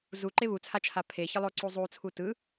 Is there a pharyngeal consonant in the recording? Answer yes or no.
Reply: no